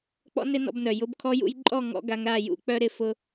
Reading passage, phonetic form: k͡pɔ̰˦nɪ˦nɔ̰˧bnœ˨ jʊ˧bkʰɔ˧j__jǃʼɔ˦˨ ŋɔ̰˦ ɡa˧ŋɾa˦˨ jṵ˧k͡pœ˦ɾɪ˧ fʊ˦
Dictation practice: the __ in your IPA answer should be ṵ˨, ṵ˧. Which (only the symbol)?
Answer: ṵ˧